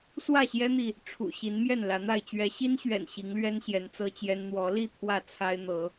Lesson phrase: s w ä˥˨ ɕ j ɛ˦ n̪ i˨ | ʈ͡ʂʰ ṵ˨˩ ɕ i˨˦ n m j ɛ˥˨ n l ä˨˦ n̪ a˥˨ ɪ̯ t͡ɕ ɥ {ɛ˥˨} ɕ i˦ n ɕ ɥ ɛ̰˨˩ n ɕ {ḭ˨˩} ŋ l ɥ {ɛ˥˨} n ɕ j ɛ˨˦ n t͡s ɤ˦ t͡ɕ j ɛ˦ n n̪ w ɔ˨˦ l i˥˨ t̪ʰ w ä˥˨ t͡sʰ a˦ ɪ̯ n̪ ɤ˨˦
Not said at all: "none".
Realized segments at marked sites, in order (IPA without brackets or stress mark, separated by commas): ɛ˨˦, i˨˦, ɛ˦